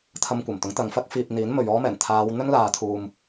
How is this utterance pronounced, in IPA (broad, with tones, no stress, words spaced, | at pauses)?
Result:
t̪ʰɐ˧mkʷɐ˨˩mt̪ʊ˨˥ŋt̪ɐ˨ŋ fɐ˥k̚ fiː˨p̚ n̪iː˨˥nmɵ˨ɥɔː˥mɛː˨˩n t̪ʰaː˨˧w n̪ɵ˥nlaː˨˧t̪ʰuː˨m